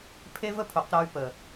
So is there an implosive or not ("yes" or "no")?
no